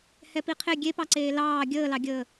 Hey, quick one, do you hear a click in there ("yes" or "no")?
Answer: yes